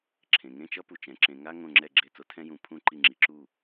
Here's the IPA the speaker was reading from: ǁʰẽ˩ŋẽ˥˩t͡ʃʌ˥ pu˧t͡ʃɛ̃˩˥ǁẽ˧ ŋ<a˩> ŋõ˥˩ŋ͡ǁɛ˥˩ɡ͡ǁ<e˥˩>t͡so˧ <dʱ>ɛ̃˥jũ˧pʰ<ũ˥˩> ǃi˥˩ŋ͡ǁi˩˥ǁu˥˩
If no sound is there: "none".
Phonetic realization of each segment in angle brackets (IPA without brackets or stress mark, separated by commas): a˥, e˥˩, tʰ, ũ˥˩